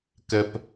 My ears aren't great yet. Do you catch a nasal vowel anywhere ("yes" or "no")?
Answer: no